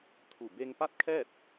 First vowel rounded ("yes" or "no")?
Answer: yes